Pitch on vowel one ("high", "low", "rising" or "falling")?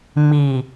low